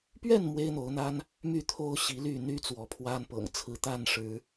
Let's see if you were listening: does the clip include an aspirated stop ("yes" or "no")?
yes